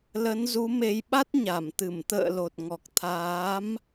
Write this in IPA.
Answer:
l ə˨˦ n z u˨˦ m e˧ j ɓ a˦˥ t̚ ɲ a˧˩ m t̪ ɨ˧˩ m t̪ ə̰ː˧˨ l o˨˩ t̚ ŋ ɔ˨˩ k̚ t̪ʰ aː˨˦ m

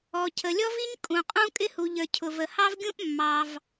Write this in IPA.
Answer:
ɔ˩ cʰ ə˩ lʲ ɔ˥ v i˥ ɲ kʼ ũ˩ qʼ ũ˥ kʼ ɪ˥ h u˩ ʎ ə˞˩ cʰ ʊ˩ v ə˩ h ɑ˥ v ɡʲ ũ˥ ʔ mː ɑ˩ v

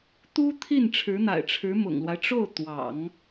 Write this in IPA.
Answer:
t̪ u˥ t̪ʰ i˥˩ n ʈ͡ʂʰ ɻ̩˧˥ n̪ a̰˨˩ ɪ̯ ʈ͡ʂʰ ɻ̩˧˥ m ʊ̰˨˩ ŋ l w a˦ ɪ̯ ʈ͡ʂ o˥˩ ʊ̯ t̪ w ɑ̰˨˩˦ ŋ

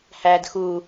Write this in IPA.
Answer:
h æː d x u

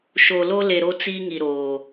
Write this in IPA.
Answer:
ʃ o˨ l o˦ l e˨ ɾ o˦ t͡s iː˦ ŋ i˨ ɾ oː˨

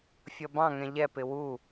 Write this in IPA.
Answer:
fʲ ʌ b ɑ̃ ŋ ɛ̃ ʎ ɛ p ɪ w u

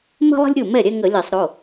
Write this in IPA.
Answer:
m ə̤˦ lˠ ə̤˦ lʲ ɾʲ o˥˩ m ɛ˥˩ ɾʲ ɛ˦ ŋ ə˧˩˧ lʲ ɛ˧˩˧ sˤ ɾ o˩˧˩

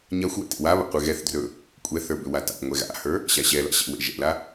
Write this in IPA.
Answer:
ɲ a xʷ w ɛ̰ t ḛ w a β a̰ qʷ e ɣ ɛ θ d r ɵ | kʷʼ ɛ θ ə˞ b ʏ w a t a̰ ŋʷ ɛ ɣ a̰ h ə˞ | ɕ a ɕ ɛ l a̰ ɕ ɛ̰ w ḛ ʒ ɛ̰ l a

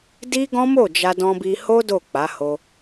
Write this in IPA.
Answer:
d i˦ ɡ ɔ̃˦ m o˦˨ d͡ʒ a˧ d ɔ̃˧ b i˧ h o˦ d o˦˨ k͡p a˨˦ h o˧

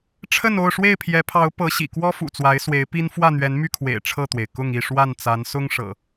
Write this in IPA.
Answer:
ʈ͡ʂʰ ə˥˨ n o˥˨ ʊ̯ ʂ w e˥˨ ɪ̯ pʰ j ɛ˨˦ pʰ ɑ˨˦ ʊ̯ p ɤ˨˦ ɕ ḭ˨˩ k w ɔ˦ f ṵ˨˩ t͡s w a˨˦ ɪ̯ s w e˨˦ ɪ̯ p i˦ n f w ä˥˨ n̪ ɥ ɛ˨˦ n m y˥˨ kʰ w ḛ˨˩ ɪ̯ ʈ͡ʂʰ ɤ˥˨ t̪ w e˩ ɪ̯ k ʊ˥˨ ŋ i˥˨ ʂ w a˥˨ n t͡s a˨˦ n s ʊ˦ ŋ ʂ ɤ̰˨˩

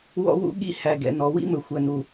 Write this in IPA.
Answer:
w ɔ̰˦ w ṵ˦ ɠ ḭ˦ h æ˨ ɡ ɛ̰˨ n ɔ˨ w ḭ˦ m ɵ˨ xʷ æ˨ n u˨

